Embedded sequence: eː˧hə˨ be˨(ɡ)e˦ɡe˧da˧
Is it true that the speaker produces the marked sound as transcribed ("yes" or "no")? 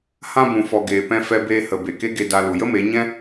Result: no